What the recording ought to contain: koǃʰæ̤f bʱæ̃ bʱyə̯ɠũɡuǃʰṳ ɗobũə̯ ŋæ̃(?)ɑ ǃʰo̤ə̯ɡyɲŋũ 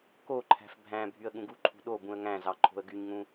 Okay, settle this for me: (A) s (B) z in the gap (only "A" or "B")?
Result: B